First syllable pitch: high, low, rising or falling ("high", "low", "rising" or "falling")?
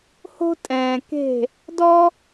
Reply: high